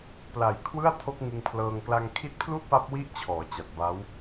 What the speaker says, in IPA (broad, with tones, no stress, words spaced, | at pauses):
pla˨˩j kʰwɯ˥˩a̯tʰo˦˥k̚ŋɯ˧ŋpʰlɤː˧ŋ kla˧ŋkʰi˦˥t̚pʰlu˥˩ʔ pa˦˥p̚ wi˥˩ʔt͡ɕʰɔː˩˦t͡ɕa˨˩t̚ ba˦˥w